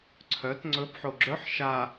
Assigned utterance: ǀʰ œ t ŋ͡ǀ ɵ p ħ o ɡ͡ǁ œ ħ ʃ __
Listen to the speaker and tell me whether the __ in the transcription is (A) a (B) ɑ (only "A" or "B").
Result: A